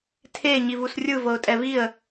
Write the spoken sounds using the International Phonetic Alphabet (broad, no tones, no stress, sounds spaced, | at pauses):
tʰ e ɲ i v u s rʲ ɯ v ɤ ʊ̯ tʼ ɛ v i ə̯